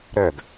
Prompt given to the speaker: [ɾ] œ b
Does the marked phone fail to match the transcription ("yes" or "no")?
no